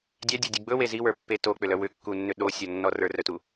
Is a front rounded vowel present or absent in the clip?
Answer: present